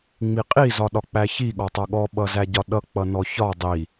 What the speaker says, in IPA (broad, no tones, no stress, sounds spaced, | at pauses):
ŋ͡m i qʼ i z ɒ ɗ ɒ k͡p æ ç i ɠ ɒ tˤ ʌ ɠ ɔ ɓ ʌ z æ ɟ ɒ ɗ ʌ k͡p ʌ n ɔ ç ɒ dˤ i